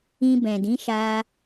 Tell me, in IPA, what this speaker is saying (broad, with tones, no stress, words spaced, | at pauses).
ĩ˧bɛ̃˨dĩ˨˦ʃa˧